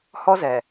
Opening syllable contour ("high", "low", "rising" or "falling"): high